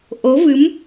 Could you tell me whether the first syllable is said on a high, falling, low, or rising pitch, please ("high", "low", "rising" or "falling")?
rising